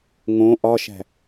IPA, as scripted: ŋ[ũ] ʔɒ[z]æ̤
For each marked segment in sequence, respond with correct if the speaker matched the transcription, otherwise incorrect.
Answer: incorrect: õ, incorrect: ʃ

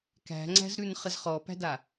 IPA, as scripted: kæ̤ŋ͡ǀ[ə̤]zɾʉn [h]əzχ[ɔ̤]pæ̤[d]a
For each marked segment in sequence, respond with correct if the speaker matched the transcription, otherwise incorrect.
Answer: incorrect: æ̤, incorrect: χ, incorrect: ɔ, correct

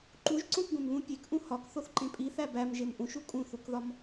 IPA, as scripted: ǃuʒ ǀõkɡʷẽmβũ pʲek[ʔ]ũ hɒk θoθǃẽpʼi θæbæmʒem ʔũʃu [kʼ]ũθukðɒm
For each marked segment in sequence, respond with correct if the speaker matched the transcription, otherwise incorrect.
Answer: correct, correct

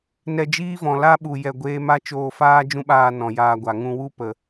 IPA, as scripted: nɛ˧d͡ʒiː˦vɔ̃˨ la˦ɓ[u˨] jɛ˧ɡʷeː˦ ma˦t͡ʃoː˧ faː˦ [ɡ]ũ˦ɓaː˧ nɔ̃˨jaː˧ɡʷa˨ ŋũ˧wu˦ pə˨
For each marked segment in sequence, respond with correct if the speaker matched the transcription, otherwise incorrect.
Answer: correct, incorrect: d͡ʒ

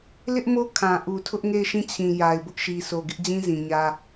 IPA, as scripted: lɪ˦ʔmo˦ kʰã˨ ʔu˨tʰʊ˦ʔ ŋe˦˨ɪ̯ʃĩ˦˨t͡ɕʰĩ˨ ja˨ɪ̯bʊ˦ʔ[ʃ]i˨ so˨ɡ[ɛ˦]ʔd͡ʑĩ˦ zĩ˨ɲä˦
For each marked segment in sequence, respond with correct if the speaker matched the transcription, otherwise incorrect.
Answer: correct, incorrect: ɪ˦

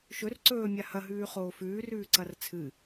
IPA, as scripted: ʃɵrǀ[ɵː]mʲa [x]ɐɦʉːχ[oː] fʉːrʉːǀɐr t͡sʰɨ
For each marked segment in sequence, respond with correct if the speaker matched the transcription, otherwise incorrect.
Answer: correct, incorrect: h, correct

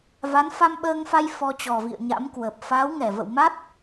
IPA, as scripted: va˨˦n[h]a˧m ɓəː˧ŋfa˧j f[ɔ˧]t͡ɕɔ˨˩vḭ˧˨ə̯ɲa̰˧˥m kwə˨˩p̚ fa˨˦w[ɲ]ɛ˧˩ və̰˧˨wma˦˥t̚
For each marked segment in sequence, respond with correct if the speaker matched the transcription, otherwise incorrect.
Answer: incorrect: f, correct, incorrect: ŋ

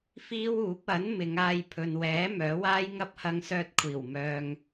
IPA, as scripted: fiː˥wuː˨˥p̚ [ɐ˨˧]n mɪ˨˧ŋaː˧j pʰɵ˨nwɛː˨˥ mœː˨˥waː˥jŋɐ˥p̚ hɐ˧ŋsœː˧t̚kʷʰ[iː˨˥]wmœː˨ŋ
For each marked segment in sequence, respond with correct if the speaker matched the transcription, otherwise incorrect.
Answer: incorrect: ɐ˨˥, incorrect: iː˨˩

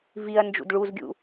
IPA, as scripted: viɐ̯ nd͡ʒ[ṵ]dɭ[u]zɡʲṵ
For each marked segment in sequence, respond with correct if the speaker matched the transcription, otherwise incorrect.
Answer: correct, correct

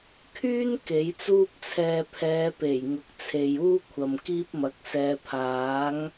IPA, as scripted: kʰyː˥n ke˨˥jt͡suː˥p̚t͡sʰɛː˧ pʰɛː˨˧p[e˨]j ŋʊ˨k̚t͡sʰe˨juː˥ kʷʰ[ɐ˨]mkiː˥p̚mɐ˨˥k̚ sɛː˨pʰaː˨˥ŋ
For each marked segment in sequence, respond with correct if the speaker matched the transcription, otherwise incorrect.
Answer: incorrect: e˨˩, correct

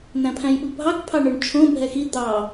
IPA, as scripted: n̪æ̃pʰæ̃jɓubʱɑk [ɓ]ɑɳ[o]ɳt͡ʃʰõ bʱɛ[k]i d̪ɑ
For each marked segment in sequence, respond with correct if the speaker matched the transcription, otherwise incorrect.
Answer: incorrect: pʰ, incorrect: ɵ, incorrect: x

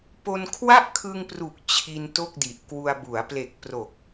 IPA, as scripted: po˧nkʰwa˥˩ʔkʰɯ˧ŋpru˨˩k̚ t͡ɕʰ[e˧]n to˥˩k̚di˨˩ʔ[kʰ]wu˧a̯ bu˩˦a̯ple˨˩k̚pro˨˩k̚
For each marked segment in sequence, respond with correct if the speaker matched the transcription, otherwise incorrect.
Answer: incorrect: i˧, incorrect: k

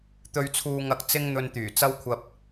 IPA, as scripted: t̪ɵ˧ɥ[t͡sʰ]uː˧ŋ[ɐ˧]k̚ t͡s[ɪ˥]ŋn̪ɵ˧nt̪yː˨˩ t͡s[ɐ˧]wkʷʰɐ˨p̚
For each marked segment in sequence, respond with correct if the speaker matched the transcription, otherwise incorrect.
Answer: correct, correct, correct, correct

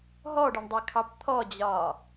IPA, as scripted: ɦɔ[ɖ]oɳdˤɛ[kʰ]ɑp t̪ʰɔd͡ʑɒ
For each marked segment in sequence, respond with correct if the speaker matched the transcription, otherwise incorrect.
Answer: correct, correct

